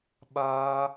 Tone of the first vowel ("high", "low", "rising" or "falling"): high